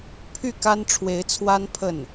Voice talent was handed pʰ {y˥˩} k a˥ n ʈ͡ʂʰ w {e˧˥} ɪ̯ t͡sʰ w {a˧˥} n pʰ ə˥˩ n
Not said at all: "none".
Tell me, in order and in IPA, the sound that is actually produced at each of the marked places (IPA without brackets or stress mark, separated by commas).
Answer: y˥˩, e˧˥, a˥